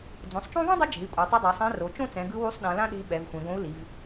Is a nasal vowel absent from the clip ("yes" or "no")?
no